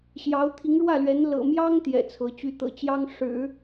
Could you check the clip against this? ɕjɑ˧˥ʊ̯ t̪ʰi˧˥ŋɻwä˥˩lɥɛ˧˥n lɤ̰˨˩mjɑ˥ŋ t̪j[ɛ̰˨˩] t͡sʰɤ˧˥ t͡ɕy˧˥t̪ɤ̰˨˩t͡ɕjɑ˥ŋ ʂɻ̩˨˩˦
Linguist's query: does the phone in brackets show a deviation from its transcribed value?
no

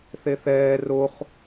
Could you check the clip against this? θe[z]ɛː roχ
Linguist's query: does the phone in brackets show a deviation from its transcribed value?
yes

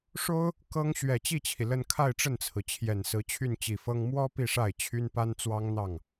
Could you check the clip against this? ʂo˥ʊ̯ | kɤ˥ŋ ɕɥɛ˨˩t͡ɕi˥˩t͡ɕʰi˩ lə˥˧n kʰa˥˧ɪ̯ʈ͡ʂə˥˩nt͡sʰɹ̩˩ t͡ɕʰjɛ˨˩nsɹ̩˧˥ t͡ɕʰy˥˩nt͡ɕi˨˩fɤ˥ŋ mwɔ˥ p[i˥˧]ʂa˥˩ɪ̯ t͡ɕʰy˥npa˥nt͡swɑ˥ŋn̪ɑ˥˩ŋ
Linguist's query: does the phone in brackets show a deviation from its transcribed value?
no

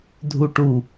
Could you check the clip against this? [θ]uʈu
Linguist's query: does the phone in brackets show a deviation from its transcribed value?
yes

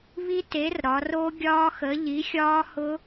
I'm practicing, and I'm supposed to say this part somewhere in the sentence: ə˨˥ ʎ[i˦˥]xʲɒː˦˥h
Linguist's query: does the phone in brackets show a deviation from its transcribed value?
yes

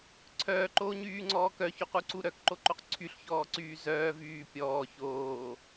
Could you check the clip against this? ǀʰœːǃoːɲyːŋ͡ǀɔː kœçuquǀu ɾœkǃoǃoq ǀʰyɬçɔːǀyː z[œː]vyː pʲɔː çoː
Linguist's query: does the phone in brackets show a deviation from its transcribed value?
no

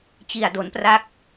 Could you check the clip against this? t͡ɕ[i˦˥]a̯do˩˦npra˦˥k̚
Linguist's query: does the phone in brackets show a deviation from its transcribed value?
yes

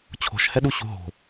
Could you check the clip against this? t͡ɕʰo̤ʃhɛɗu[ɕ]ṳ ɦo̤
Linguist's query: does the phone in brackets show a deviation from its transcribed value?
no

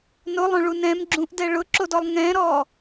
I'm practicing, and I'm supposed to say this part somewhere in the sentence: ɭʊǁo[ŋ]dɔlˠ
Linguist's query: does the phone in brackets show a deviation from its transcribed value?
yes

